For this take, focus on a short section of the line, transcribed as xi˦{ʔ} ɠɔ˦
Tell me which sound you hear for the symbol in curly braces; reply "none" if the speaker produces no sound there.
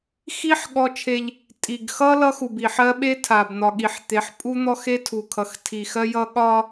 ħ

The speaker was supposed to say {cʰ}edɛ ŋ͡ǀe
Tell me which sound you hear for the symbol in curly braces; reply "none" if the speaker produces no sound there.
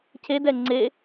cʰ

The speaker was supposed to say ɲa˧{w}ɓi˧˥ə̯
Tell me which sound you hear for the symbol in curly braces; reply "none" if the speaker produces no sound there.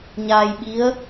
j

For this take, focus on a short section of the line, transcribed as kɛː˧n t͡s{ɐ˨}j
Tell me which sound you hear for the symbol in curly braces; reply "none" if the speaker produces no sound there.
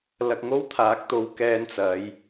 ɐ˨˥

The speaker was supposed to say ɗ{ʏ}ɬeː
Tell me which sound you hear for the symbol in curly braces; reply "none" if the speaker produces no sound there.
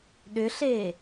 ʏ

